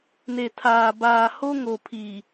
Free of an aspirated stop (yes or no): no